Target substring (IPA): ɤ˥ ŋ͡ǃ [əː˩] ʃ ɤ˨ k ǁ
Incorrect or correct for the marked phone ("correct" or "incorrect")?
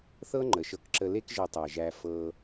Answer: incorrect